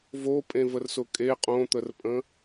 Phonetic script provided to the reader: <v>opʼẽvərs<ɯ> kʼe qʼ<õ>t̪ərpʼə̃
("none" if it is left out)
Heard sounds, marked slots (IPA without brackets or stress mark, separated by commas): v, ʊ, õ